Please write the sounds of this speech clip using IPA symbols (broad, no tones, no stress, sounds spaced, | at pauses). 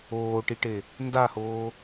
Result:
oː ʈ i ʈ e | n d a h oː